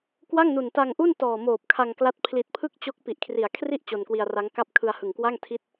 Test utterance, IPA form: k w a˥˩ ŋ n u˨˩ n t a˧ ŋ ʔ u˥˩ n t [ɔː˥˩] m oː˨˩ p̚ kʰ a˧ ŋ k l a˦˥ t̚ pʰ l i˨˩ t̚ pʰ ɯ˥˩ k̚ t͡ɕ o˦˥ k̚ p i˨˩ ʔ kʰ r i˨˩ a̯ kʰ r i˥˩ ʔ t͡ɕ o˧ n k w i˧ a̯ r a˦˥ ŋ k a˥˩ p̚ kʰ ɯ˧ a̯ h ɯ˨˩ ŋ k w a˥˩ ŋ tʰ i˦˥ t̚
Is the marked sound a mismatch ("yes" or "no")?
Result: yes